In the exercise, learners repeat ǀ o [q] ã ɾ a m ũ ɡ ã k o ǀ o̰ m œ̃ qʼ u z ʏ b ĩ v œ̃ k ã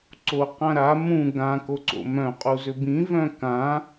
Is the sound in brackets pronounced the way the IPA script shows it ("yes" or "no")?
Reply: yes